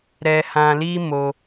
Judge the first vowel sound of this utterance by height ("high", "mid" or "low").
mid